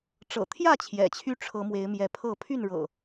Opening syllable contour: low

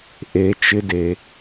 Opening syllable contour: low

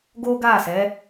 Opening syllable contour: high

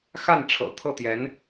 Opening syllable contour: falling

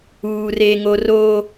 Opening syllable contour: low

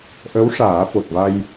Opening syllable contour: rising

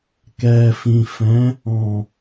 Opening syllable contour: low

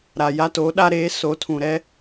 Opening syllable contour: low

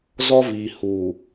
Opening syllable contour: high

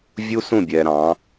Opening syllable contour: high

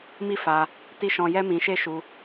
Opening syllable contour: high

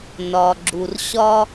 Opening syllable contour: low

